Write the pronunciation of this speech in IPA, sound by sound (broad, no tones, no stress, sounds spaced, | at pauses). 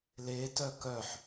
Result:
l e t œ k œ ħ